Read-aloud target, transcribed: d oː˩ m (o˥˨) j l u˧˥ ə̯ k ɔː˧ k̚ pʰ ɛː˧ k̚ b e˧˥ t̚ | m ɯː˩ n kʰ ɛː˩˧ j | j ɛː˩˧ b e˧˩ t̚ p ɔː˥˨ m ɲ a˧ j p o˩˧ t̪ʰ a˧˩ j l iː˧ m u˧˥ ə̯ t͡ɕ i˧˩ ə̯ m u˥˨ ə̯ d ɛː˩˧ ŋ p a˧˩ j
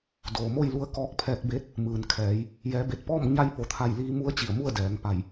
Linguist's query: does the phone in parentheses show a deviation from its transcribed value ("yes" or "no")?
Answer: no